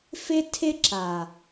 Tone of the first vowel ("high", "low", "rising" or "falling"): high